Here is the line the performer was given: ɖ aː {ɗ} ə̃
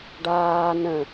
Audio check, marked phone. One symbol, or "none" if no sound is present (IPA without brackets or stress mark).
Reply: n